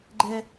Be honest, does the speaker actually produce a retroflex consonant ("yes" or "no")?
no